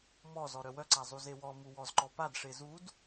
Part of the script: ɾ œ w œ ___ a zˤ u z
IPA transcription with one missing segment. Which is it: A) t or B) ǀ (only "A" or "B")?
B